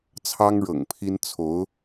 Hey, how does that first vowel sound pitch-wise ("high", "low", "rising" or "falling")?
high